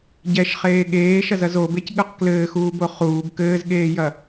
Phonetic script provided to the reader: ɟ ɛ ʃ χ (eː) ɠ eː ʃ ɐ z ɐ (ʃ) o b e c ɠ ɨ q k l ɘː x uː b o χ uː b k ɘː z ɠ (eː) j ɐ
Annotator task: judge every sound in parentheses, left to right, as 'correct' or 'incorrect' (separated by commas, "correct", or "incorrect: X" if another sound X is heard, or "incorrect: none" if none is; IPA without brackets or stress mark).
correct, incorrect: z, correct